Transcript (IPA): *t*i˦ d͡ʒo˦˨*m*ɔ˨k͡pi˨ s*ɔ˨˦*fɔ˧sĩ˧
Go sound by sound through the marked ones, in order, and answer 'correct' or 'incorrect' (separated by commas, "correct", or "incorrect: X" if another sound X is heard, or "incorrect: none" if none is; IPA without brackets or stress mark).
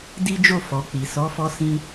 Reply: incorrect: d, incorrect: f, correct